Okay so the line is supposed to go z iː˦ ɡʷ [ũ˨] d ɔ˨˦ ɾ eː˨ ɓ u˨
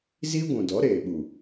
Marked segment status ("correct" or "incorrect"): correct